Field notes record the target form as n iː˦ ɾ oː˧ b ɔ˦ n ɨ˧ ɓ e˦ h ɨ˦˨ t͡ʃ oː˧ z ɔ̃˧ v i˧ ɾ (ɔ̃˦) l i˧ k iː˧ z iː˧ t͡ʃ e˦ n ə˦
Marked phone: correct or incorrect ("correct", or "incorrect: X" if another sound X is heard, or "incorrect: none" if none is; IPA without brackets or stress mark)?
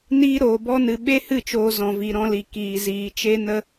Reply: correct